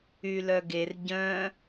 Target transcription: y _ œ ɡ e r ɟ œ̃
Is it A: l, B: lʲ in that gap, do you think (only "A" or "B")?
A